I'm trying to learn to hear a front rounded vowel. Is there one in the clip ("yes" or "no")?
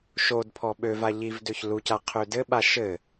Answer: yes